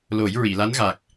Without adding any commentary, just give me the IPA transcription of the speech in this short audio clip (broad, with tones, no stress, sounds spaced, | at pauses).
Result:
l o˨˩˦ j ɹ i˨˩˨ l a˧˥ n ɣ a˨˩ k̚